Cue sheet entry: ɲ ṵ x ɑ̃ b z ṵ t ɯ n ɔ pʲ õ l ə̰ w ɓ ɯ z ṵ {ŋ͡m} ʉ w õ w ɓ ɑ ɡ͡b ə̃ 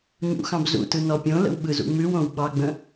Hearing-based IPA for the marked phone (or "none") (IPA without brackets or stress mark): ŋ͡m